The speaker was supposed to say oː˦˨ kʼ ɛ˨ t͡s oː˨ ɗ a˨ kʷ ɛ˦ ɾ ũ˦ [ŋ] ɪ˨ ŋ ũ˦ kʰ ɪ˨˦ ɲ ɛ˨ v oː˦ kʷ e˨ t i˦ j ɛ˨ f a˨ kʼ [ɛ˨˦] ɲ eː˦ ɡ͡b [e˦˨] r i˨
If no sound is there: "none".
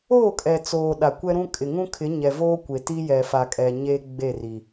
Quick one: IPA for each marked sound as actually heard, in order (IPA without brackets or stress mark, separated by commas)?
kʼ, ɛ˨, e˦˨